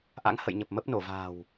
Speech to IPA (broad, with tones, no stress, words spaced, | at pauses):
ʔa̰˧˥ŋhə̰˧˨jɲə˨˩p̚ mə˦˥p̚no˧˩va̤ː˨˩w